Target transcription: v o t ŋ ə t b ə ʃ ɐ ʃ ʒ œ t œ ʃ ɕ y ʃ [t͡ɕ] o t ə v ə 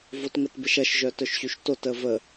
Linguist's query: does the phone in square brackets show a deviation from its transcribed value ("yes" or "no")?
yes